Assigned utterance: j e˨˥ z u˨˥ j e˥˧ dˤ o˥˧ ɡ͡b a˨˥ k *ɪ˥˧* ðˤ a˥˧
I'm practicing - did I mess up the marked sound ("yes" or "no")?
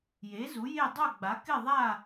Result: no